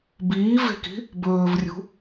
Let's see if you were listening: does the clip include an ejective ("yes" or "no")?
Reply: no